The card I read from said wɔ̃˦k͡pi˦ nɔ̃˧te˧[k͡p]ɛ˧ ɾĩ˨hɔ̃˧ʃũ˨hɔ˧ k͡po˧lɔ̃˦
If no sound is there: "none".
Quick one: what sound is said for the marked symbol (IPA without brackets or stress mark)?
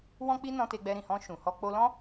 ɡ͡b